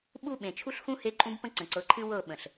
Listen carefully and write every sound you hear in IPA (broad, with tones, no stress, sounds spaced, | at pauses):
ɓ u˦ ɓ ẽ˨ t͡ʃʰ u˦ ɬ x ũ˦ h e˦ ǃʼ ũ˦ b p ə̃˦ ǀ ə̃˨ ǀ ɤ˨˦ ǃʰ ɨ˦ w ɤ˦˨ ɓ ə̃˨ ɬ